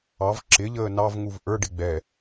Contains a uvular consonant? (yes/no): no